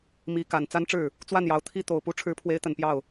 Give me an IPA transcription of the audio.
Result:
mi˧˥ka˨˩n t͡sa˥nʈ͡ʂɻ̩˥˩ | t͡swa˥˩njɑ˧˥ʊ̯ t̪ʰi˥˩ t̪o˨˩ʊ̯pu˧˥ ʈ͡ʂʰɻ̩˧˥pʰwe˧˥ɪ̯t̪ə˨˩n pjɑ˥˩ʊ̯

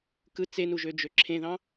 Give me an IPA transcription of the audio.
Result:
kɯ t͡senuʒ ød͡ʒøǁʰẽðɑ̃

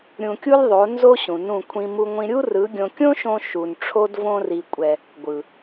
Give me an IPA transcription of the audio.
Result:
ɾʲũ˧kʲu˦lʲðˤo˨˦ nzo˦ ɕũ˨nũ˦˨ kʷʰĩ˧ mu˧ŋʷĩ˧ ɾʲu˦rɯ˨˦ɡʲõ˧ kʲõ˦ʃõ˧ ʃu˨n ʈ͡ʂʰo˦d võ˦ri˧kʷʼɛ˧ | ɡʷɯ˨

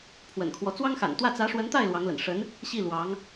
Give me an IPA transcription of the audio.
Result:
pʰwə̰˨˩nkʰwɔ˦ t͡swɑ˥ŋxa̰˨˩nt̪wä˥˩ t͡sä˧˥ʂwə˧˥nt̪a˥˩ɪ̯ lwɑ˧˥ŋlə̰˨˩n ʂə˧˥n | ɕi˥˩lwɑ˧˥ŋ

